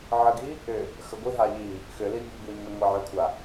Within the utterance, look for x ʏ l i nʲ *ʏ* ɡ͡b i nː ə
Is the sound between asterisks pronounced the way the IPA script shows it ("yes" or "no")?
no